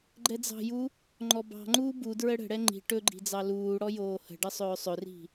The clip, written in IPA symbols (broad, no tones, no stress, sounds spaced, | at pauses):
ɡ͡ǃ ɛ d͡z ɑ̤ j u | ŋ͡ǃ ɔ b ɑ̤ ŋ͡ǃ uː b u d ɹ ə ɽ ə̤ ɽ ɛ ŋ͡ǃ i̤ ʈ ɵ ɡ͡ǃ i̤ d͡z ɑ l uː ɽ ɔ j oː h ə̤ ɖ ə sˤ ɵː sˤ ɵ r i̤